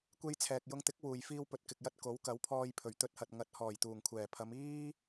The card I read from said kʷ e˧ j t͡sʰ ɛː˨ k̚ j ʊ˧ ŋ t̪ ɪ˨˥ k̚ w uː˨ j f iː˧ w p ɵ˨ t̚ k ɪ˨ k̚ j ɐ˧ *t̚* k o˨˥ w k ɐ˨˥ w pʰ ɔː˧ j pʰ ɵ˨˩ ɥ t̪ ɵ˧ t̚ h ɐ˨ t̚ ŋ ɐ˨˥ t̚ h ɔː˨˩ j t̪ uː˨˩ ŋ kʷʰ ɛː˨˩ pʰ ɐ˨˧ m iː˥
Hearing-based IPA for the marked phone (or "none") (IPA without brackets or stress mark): t̚